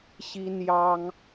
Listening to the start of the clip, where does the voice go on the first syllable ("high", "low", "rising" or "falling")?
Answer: high